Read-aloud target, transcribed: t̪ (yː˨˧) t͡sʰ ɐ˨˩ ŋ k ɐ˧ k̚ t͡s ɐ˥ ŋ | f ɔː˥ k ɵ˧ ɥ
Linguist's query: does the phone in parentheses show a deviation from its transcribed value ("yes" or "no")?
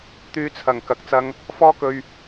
no